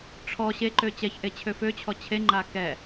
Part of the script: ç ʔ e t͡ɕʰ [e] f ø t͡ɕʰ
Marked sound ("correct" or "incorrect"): incorrect